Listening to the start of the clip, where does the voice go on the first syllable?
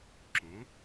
rising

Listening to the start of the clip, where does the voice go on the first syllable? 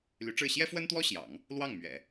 rising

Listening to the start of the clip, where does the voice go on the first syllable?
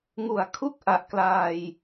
low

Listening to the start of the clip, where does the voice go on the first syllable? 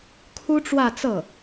high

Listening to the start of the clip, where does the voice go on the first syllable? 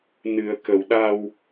low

